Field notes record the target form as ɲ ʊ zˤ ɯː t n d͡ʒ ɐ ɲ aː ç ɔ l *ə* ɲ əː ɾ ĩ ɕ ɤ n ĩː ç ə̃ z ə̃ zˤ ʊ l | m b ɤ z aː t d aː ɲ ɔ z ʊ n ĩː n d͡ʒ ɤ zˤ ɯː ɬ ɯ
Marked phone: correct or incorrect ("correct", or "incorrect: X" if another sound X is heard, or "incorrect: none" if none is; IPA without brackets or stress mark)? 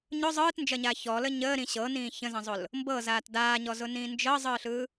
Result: correct